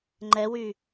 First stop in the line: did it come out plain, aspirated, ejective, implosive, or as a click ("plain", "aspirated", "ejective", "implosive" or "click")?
click